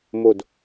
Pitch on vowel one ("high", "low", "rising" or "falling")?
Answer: falling